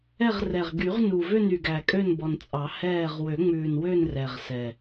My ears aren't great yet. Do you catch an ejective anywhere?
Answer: yes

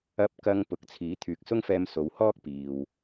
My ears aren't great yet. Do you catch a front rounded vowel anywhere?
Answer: yes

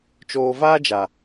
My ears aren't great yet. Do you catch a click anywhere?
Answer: no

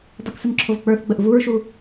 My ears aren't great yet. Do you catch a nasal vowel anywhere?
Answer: no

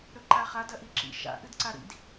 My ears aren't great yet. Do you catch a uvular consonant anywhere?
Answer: yes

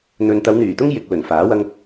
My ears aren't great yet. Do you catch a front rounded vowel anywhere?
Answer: yes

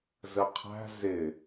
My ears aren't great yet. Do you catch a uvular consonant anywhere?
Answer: yes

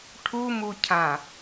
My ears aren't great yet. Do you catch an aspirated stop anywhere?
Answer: yes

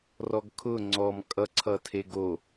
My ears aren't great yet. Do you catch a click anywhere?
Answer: yes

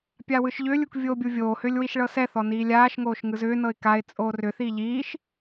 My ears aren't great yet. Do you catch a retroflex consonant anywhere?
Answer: yes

